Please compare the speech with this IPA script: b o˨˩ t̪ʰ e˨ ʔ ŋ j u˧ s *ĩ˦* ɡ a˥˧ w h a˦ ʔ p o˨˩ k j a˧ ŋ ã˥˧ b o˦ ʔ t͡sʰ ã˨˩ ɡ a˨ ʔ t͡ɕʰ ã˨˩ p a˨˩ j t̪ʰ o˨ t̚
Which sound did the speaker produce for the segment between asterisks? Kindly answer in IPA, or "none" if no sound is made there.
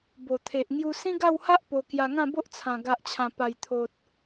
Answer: ĩ˦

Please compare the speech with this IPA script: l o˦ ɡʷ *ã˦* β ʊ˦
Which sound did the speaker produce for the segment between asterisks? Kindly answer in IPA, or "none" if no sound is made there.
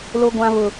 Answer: ã˦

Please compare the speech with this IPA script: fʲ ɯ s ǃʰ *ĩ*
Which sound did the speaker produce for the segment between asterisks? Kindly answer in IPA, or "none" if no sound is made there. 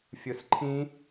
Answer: ĩ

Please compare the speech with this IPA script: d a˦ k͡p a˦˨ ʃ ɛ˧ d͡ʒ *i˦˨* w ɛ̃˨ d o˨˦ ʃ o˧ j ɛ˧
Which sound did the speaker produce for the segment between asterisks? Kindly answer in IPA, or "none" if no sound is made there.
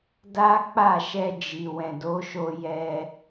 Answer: i˨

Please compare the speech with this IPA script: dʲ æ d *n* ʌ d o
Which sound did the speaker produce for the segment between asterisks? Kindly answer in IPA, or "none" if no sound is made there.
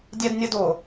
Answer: nʲ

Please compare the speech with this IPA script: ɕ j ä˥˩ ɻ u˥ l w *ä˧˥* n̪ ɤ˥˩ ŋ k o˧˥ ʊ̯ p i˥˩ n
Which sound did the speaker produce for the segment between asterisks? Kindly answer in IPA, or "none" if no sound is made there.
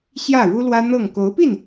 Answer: ä˥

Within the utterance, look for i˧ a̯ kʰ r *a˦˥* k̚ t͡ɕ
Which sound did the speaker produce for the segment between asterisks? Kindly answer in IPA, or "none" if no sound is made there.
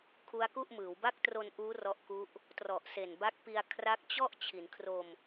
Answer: a˦˥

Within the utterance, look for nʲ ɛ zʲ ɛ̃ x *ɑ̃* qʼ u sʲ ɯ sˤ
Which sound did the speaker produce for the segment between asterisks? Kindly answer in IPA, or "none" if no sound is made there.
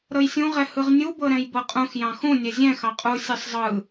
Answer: ɑ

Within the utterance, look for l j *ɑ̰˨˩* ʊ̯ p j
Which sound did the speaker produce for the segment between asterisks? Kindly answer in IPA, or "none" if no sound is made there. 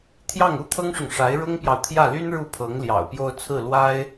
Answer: ɑ̰˨˩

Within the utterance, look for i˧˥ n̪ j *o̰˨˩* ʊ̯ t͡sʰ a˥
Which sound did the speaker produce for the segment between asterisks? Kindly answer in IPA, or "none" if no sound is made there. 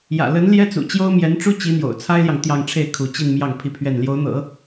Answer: o̰˨˩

